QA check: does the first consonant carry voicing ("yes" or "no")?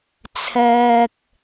no